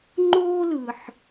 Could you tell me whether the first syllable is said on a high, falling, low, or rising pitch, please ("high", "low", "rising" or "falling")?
high